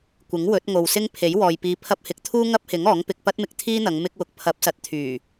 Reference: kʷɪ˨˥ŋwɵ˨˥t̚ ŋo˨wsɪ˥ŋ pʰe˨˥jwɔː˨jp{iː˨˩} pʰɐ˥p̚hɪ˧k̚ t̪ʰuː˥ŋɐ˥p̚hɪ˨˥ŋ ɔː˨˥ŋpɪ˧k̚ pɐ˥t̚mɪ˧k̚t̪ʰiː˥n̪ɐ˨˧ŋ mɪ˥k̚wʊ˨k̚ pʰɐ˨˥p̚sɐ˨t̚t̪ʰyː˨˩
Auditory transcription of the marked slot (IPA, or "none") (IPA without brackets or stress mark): iː˧